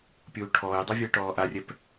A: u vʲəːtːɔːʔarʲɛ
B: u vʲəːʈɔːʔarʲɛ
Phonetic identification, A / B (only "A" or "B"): B